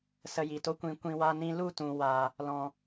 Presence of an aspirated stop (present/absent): absent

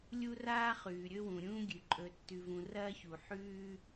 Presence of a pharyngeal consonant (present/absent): present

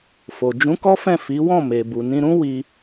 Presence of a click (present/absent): absent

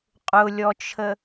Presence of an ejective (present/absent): present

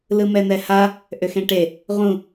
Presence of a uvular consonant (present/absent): present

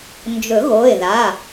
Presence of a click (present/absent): absent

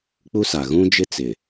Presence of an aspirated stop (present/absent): absent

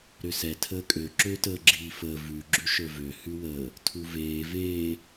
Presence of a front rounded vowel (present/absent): present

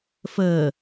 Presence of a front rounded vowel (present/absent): absent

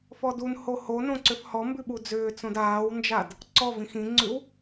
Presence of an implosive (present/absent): present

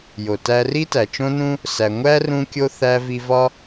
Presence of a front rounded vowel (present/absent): absent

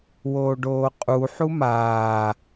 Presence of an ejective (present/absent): present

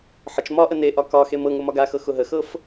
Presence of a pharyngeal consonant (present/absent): present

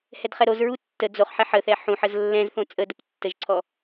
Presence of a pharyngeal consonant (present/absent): present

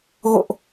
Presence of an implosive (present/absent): absent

